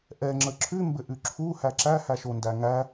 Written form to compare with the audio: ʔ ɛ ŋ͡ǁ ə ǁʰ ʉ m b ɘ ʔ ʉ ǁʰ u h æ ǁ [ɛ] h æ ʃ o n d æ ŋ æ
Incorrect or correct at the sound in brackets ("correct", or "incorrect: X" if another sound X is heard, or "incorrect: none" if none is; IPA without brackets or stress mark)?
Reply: incorrect: æ